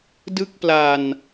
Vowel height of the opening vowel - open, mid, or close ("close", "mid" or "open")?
close